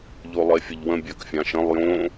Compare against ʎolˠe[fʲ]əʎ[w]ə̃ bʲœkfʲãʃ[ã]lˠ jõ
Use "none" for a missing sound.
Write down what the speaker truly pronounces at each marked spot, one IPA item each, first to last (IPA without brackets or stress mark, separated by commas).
fʲ, w, ə̃